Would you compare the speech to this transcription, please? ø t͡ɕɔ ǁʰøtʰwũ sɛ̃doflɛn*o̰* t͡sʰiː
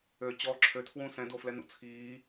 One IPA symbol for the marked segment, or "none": ṵ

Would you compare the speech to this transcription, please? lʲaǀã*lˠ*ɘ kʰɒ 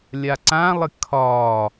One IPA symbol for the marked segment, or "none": lˠ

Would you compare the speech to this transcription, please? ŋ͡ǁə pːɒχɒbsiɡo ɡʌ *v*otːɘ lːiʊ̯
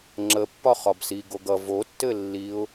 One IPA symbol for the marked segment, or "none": v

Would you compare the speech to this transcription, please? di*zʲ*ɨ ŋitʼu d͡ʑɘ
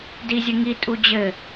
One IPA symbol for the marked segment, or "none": zʲ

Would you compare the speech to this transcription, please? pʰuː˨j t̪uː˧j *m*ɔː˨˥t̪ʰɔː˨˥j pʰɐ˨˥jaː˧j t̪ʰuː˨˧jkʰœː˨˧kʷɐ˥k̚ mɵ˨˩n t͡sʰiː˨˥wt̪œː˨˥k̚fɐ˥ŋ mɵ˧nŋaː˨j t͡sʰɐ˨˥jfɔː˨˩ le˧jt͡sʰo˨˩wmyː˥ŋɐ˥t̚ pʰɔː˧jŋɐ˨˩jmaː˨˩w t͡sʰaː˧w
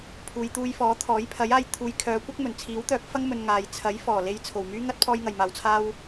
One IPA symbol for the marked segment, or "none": f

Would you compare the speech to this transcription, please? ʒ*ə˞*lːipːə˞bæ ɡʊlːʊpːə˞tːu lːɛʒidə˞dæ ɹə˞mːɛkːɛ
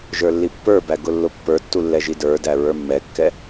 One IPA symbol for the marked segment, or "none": ə˞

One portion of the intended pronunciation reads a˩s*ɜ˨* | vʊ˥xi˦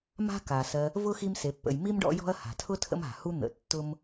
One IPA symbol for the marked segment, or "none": ɜ˨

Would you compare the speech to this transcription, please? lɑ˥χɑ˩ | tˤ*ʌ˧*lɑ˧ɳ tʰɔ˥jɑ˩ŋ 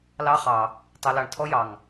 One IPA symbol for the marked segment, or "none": ʌ˧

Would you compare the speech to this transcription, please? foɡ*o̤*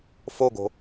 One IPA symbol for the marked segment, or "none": o̤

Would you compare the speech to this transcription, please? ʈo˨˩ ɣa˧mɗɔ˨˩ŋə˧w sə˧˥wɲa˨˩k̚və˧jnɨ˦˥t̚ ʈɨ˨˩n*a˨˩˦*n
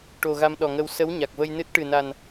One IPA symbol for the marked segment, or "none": a˨˩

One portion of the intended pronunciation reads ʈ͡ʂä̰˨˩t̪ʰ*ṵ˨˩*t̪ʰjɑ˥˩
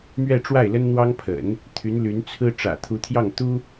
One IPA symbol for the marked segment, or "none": u˧˥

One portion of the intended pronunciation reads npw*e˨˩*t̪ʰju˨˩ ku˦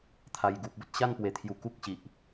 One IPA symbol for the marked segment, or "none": e˨˩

